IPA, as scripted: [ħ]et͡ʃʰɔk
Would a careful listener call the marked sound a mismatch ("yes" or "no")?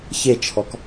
yes